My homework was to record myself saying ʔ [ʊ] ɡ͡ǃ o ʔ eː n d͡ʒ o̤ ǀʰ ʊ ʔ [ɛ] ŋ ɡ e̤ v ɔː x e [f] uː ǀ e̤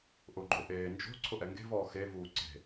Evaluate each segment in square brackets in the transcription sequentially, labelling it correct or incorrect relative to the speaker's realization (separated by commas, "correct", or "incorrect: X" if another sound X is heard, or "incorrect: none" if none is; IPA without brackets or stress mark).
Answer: correct, correct, incorrect: v